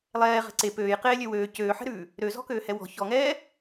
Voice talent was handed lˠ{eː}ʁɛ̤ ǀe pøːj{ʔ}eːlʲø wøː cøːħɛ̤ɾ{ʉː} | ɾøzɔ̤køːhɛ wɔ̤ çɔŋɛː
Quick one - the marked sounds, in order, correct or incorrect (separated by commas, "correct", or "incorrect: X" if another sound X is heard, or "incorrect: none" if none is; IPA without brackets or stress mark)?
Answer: incorrect: ɛː, incorrect: q, correct